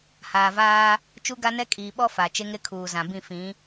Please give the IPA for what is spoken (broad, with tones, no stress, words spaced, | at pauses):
haː˨vaː˦ | t͡ʃu˦ɡa˦nɛ˦ kʼiː˨ɓɔ˦ fa˨ t͡ʃe˦ŋɾɪ˦kʰuː˨ zã˨bĩ˦˨ fĩ˨˦